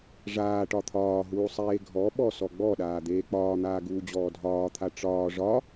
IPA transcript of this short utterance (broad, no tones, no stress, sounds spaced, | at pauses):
ʐ aː ʈ ɒ t̪ʰ ɒː ɦ uː sˤ eː ɡʱ ɔ ɓ ɔ s ɔ ɡ͡b ɔ ɗ aː d̪ eː k͡p ɒː n̪ aː ɡ uː d͡ʑ ɔː dʱ ɒː t̪ʰ a ʈ͡ʂ ɒː ʐ ɒ